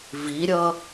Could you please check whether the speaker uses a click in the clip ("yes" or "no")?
no